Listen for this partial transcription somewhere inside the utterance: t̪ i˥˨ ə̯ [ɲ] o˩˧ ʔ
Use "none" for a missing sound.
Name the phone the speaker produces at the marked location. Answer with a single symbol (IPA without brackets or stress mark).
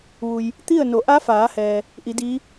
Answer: n